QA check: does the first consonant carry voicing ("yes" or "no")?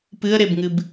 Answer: no